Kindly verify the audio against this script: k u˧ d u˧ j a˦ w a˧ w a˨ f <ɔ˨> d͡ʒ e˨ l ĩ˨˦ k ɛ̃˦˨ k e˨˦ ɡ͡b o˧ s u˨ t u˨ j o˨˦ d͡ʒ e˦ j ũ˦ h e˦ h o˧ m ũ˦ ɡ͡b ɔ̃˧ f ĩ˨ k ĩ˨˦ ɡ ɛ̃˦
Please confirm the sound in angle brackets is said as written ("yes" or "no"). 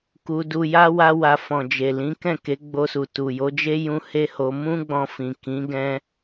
no